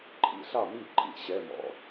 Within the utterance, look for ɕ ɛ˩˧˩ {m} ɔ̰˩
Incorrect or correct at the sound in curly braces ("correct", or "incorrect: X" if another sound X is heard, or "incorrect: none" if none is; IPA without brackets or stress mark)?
correct